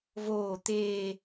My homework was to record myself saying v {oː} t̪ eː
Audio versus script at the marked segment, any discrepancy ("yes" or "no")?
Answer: no